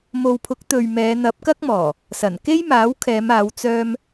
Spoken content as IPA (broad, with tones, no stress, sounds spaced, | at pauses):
m o˨ w pʰ ʊ˨˥ k̚ t̪ ɵ˨ ɥ m ɛː˨˧ n̪ ɐ˨˥ p̚ k ɐ˥ k̚ m ɔː˨˩ | s ɐ˨˩ n k e˥ j m aː˨˥ w kʰ ɛː˨˧ m aː˨˧ w t͡s œː˥ m